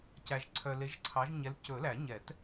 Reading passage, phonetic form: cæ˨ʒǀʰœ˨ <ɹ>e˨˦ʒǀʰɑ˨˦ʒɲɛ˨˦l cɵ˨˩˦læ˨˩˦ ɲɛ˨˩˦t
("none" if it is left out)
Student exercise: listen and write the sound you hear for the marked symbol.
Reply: l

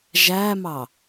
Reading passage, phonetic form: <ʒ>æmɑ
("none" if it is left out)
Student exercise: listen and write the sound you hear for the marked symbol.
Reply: ʒ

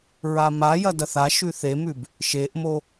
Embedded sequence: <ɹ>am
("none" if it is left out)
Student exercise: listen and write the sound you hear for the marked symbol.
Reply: ɹ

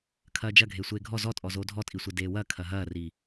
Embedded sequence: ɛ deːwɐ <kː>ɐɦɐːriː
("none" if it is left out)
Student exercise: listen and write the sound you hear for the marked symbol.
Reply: kʰ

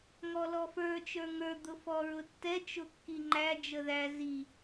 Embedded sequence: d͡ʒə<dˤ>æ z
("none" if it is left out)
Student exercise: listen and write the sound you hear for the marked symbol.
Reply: ð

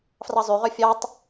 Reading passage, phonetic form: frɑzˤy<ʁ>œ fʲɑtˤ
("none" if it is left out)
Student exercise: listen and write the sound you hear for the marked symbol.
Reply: ʁ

